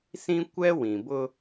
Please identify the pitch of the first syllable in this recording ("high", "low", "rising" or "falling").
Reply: high